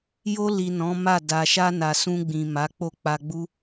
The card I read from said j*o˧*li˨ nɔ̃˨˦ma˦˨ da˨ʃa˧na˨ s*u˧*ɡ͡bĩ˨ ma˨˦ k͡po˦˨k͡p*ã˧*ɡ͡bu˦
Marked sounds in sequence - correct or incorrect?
correct, incorrect, incorrect

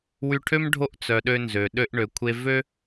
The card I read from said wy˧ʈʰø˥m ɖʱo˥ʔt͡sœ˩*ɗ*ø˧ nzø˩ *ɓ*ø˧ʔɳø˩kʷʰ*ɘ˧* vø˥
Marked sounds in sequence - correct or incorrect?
correct, incorrect, incorrect

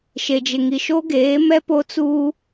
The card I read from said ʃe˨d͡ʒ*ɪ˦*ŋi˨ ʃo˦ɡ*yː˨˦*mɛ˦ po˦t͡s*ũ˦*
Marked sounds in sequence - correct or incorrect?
incorrect, incorrect, incorrect

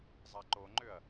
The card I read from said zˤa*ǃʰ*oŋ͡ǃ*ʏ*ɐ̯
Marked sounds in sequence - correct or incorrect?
incorrect, correct

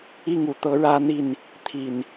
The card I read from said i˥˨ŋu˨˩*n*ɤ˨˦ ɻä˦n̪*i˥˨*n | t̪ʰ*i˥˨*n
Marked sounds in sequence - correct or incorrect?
incorrect, correct, incorrect

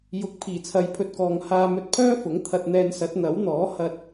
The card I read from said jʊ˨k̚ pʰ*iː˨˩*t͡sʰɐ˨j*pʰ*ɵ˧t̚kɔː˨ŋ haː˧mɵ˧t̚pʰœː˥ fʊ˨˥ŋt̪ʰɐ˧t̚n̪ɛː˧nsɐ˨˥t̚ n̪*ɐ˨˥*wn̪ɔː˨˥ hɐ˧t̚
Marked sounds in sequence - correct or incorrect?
correct, correct, correct

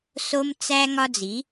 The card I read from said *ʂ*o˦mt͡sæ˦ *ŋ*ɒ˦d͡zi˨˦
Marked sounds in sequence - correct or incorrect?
incorrect, correct

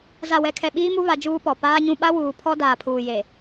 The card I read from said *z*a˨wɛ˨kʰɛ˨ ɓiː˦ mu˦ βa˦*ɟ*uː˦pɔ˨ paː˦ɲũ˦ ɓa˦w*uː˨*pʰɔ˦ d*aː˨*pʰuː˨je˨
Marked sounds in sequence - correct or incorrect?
correct, incorrect, correct, correct

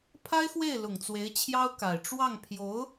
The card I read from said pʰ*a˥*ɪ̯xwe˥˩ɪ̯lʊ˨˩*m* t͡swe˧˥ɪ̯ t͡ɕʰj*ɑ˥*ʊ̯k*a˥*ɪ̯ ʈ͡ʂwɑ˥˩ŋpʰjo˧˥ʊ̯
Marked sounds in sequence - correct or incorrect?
correct, incorrect, correct, incorrect

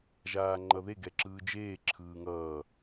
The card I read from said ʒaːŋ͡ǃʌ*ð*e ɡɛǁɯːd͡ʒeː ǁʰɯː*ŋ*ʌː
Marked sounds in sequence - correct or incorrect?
correct, correct

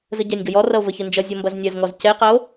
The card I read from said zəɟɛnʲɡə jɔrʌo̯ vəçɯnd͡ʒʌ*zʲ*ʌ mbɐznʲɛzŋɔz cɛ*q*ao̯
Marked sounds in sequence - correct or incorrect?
correct, correct

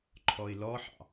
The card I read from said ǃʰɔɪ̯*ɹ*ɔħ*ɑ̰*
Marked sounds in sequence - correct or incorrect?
incorrect, correct

